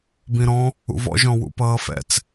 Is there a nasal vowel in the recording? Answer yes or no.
yes